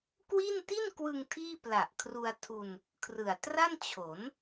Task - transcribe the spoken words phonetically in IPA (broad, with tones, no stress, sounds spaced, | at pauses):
k w i˥˩ n t i˥˩ n k w ɯ˧ ŋ tʰ iː˥˩ p l a˨˩ ʔ kʰ r u˧ a̯ tʰ u˧ n | kʰ r ɯ˨˩ a̯ t r a˥˩ n t͡ɕʰ o˩˦ n